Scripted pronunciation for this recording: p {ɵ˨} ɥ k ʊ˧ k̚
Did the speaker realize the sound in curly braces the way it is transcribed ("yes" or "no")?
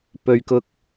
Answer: yes